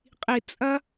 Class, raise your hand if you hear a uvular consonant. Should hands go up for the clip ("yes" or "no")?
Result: yes